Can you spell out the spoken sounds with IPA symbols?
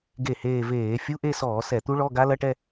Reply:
ɡe˥˩heː˥˧ veː˧˩˧fʲu˧˥˧ʔe˥˧ sɔː˧˩˧ sɛ˧˩˧t̪u˦˥ɭɔ˧˥˧ɡa˦˥ lɐ˧˥˧ʈɛ˥˧

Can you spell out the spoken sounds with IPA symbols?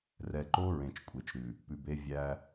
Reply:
rɛ˨ǃo˦ ɹẽ˨t͡ʃkʷʼe˨t͡ʃɾʉ˨ | pʉ˨be˦ vʲæ˦

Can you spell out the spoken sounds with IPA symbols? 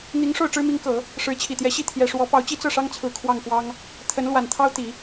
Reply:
n̪i˧˥ŋ ʂo˥˩ʊ̯ʈ͡ʂɻ̩˥mi˧˥ŋkɤ˨˩˦ | ʂɻ̩˧˥t͡ɕʰi˨˩t̪jɛ˧˥ɕi˥˩ t̪ʰjɛ˨˩ʂwɔ˧˥ pɑ˧˥ʊ̯t͡ɕi˥ t͡sɤ˥˩ʂɑ˥ŋt͡sʰɹ̩˨˩ kʰwɑ˥˩ŋkwɑ˥ŋ | t̪ʰə˧˥n lwa˨˩nt̪ʰɑ˥ʊ̯t̪i˨˩˦

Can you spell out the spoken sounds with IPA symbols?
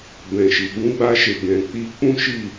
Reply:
bɛ̃˨ʃi˨ ɡũ˧ɡ͡ba˧ʃe˨ ɡɛ̃˨k͡pi˧ k͡pũ˦ʃi˦˨

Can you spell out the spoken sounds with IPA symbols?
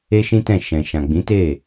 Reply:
e˦ʃĩ˦tɛ̃˦˨ ʃɛ̃˨ʃã˨ ɡ͡bĩ˨˦te˦˨

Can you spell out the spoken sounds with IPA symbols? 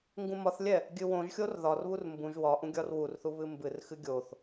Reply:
ŋɡũmɒθlʲɛ | ɡʲɨwõʒxʲor ðɒrβur mbũʒ wɒ ʔũɡʲɒrwurθu βɨmbɨrxɨ ɡʲoθ

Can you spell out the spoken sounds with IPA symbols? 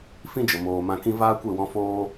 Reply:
fĩ˦d͡ʒə˨ moː˨ mã˧kĩ˦ vaː˦kʷe˦˨wɔ̃˧ foː˦

